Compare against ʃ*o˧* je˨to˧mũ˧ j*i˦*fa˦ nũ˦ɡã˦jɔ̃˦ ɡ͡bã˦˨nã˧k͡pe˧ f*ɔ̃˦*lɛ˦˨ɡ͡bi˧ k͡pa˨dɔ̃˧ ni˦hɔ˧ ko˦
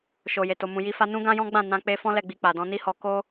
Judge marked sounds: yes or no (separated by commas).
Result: no, yes, yes